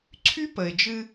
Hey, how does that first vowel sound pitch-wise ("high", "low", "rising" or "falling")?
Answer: high